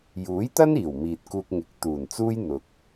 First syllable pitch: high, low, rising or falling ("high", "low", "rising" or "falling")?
rising